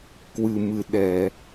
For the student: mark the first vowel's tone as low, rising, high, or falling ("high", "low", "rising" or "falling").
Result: low